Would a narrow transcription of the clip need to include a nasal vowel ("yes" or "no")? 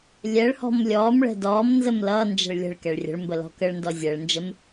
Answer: no